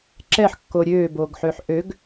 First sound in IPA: ǁ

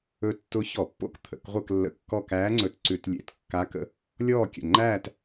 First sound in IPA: ɵ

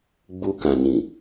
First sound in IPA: ɡ͡b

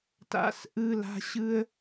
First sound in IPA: t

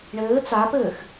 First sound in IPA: ɳ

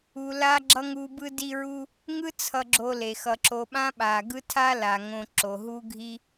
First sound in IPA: u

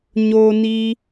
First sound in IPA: ɲ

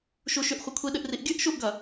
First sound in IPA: ʃ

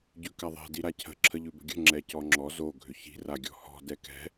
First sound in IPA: ɟ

